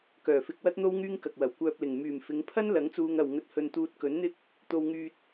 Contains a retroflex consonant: no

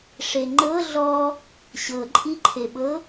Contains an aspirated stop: yes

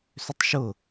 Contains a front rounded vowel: yes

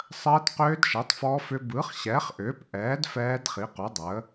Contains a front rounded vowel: yes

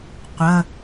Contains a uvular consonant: yes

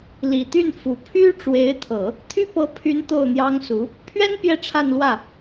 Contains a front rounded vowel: yes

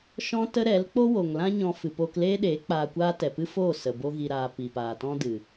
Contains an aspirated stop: no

